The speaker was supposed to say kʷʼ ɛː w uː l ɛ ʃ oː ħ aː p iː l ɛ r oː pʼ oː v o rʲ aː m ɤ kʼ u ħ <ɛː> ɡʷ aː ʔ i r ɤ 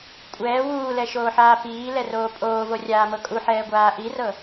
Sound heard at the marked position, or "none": ɛː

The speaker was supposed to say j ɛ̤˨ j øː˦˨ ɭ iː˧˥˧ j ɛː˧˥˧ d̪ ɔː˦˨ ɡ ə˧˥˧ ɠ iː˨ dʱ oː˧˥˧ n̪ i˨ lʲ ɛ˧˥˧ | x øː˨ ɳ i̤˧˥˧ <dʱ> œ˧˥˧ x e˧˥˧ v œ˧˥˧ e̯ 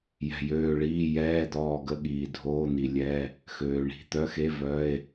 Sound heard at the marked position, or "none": t̪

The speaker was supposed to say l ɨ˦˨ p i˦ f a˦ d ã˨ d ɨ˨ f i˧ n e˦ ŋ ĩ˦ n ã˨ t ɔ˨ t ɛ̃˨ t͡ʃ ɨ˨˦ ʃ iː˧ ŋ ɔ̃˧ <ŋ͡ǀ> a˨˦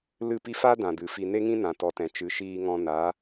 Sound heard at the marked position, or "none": n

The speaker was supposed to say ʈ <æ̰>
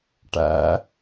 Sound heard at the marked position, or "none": æ̰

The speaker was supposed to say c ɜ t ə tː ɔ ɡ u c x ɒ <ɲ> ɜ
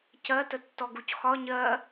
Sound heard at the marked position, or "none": ɲ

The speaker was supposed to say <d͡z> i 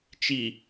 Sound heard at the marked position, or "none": t͡ʃ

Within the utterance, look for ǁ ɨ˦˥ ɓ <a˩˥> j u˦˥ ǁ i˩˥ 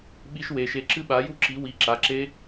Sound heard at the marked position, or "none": a˩˥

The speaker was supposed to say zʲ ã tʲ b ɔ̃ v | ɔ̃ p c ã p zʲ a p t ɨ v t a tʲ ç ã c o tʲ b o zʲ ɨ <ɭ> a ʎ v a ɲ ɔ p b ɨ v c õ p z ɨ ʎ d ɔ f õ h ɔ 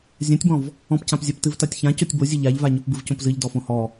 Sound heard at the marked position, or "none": ʎ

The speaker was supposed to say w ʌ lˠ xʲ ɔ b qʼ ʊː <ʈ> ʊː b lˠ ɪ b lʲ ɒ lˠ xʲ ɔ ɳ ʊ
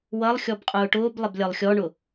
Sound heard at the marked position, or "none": ʈ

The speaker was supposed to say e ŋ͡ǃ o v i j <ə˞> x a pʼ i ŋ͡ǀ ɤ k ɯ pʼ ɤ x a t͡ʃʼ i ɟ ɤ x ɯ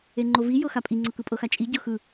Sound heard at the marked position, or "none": ɤ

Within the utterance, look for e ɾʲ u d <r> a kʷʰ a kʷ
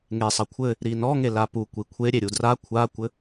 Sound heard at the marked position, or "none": r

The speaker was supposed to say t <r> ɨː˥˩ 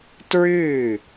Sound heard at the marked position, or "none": ɹ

